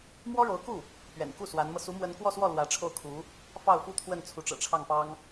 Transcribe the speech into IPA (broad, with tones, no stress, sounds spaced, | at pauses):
m w ɔ˥ ɻ o˧˥ ʊ̯ k u˥˩ | p ɥ ɛ̰˨˩ n k u˥˩ s w a˧˥ n m ɤ˧ s u˧˥ m w ə˧˥ n k w ɔ˥˧ s w ɔ˥˩ l w ä˧˥ ʈ͡ʂʰ o˥˩ ʊ̯ kʰ u˧˥ | f ɑ˥˩ ʊ̯ f u˥ t̪ʰ w ə˥˩ n t͡sʰ u˧˥ ʈ͡ʂ ɤ̰˨˩ ʈ͡ʂʰ ɑ˥˩ ŋ p ɑ˥ ŋ